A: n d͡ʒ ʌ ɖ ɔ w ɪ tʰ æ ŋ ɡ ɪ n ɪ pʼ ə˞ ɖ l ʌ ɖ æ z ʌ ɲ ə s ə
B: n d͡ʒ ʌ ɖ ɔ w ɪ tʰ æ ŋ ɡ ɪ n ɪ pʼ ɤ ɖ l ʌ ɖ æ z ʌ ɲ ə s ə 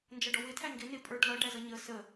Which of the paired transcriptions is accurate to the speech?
A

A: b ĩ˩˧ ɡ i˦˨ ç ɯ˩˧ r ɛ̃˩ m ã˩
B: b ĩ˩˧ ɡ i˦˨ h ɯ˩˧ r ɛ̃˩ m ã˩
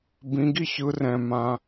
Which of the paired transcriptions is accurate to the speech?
A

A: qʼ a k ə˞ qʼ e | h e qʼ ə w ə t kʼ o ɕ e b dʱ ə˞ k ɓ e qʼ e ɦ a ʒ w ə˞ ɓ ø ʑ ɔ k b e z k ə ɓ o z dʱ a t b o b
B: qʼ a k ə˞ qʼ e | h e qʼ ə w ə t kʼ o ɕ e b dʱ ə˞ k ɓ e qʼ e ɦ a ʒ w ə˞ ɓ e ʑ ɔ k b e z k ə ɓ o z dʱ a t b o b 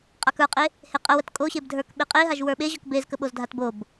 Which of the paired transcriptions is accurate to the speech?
B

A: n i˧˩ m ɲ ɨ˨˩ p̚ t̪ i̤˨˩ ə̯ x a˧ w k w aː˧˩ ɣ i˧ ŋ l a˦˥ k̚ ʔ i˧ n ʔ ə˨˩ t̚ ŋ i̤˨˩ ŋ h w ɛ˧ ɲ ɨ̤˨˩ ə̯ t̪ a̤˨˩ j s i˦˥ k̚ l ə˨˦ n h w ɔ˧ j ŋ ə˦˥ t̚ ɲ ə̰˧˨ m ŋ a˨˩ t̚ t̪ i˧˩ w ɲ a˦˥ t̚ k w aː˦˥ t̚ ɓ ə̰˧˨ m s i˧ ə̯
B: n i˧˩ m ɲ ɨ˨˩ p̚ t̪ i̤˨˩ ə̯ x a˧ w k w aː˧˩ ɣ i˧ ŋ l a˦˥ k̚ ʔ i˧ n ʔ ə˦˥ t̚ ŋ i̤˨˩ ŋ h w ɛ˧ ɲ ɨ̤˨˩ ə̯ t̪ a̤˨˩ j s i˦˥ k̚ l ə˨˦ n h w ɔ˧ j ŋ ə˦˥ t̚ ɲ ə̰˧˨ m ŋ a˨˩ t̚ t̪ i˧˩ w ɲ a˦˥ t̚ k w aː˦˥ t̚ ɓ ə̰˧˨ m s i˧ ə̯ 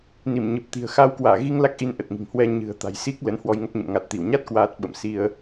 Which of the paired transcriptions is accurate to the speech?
A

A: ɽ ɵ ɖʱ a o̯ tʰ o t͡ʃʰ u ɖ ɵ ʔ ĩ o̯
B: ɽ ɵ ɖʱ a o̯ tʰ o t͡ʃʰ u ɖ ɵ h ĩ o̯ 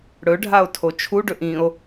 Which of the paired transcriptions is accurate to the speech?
A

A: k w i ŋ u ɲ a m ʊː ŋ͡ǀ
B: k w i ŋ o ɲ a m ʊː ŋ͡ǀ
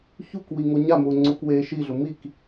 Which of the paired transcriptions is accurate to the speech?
B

